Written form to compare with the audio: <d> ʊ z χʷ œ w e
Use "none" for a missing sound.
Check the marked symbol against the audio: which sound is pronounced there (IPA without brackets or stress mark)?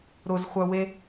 ɾ